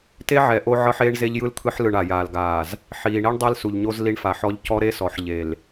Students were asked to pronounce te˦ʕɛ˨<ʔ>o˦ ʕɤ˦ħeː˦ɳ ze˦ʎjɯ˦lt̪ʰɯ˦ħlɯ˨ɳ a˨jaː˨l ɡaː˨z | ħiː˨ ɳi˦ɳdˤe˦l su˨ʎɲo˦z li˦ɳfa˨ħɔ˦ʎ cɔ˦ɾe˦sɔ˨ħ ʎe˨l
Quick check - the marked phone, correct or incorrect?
correct